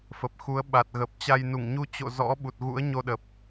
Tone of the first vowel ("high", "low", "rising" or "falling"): low